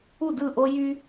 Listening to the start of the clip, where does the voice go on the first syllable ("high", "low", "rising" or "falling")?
falling